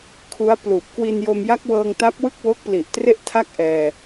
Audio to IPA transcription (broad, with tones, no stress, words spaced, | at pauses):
kʰu˦˥a̯pluː˨˩p̚ kwi˧njo˧mja˦˥k̚wɤː˧ŋ ta˦˥p̚wɯ˥˩k̚wo˦˥k̚ pli˨˩ʔtre˥˩ʔtʰa˥˩k̚ ʔɛː˧